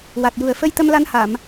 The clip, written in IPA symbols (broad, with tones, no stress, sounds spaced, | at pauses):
w a˨˩ t̚ j u˨˩ ə̯ f ə˧ j t̪ ə˧ m l a˧ n h a˨˩˨ m